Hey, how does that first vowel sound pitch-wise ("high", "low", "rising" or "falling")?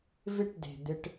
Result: falling